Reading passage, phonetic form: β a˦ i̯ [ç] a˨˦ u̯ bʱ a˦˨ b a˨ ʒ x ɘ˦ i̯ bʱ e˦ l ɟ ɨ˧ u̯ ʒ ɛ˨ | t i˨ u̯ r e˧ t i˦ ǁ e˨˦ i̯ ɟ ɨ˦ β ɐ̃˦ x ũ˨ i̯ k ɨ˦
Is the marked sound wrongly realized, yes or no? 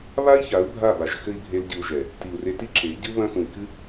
no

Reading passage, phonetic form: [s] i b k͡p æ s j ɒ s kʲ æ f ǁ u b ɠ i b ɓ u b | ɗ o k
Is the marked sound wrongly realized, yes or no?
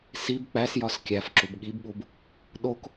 no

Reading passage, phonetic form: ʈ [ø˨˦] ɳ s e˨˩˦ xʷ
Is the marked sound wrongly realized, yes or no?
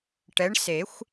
yes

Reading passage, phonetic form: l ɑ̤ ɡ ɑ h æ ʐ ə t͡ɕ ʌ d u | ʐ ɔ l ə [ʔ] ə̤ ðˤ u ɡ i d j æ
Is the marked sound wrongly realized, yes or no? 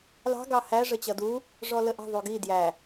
no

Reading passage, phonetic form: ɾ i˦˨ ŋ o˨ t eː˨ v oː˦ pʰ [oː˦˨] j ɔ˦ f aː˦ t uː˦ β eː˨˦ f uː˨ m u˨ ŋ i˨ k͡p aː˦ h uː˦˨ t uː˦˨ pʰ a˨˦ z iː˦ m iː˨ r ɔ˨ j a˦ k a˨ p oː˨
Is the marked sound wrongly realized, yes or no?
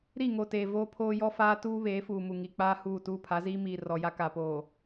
yes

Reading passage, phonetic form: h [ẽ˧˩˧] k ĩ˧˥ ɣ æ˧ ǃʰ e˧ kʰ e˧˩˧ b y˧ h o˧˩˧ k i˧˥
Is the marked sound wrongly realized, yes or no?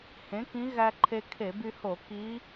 yes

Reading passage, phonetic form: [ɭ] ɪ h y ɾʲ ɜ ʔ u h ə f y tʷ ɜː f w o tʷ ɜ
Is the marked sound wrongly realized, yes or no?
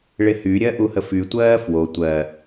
no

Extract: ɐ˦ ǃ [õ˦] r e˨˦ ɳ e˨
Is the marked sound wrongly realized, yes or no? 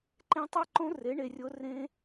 no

